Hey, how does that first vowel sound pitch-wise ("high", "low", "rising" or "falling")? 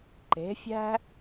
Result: rising